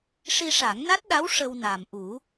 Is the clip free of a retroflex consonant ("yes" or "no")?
no